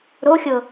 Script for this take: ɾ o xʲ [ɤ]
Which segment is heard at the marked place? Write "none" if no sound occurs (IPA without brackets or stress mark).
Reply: ɤ